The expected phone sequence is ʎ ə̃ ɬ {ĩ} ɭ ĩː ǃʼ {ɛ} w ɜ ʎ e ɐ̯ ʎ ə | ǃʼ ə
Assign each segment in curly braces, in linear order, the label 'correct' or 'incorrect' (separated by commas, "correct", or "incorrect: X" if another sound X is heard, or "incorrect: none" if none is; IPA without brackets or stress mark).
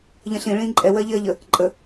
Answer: correct, correct